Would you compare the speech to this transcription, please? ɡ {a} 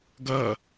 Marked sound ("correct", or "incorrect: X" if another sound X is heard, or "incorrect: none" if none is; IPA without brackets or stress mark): incorrect: ʌ